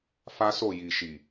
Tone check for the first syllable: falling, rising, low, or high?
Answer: high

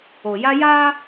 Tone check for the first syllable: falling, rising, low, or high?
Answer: low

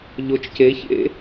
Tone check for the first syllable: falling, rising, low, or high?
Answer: rising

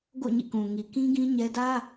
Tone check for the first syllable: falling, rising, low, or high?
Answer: falling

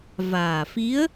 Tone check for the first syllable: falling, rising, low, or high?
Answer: low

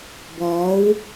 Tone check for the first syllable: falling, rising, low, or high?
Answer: rising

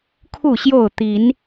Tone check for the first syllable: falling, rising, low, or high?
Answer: falling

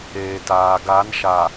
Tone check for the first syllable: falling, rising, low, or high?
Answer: low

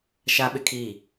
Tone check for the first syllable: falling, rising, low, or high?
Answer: high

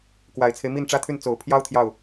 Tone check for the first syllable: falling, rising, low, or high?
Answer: low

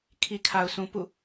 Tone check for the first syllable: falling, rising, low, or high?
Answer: low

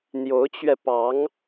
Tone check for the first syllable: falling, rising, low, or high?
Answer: rising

